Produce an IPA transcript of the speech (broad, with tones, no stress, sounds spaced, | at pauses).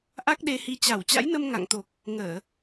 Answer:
ʔ a˦˥ k̚ ɗ e˧ h i˧ t͡ɕ a˧˩ w t͡ɕ a̰˧˥ j n ə˧ m ŋ a̰˧˨ ŋ t̪ o˨˩ k̚ | ŋ əː˧˩˨